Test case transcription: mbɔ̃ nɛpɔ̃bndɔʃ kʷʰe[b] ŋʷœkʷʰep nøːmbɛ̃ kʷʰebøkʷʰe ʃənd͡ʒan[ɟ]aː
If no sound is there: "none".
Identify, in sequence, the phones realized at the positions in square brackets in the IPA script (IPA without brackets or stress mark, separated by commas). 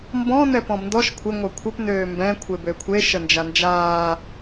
none, d͡ʒ